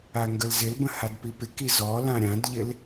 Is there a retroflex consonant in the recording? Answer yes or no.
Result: no